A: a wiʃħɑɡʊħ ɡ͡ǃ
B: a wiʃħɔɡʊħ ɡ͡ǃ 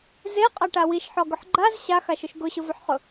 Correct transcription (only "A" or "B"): B